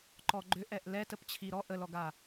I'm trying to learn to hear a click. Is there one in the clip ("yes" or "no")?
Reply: yes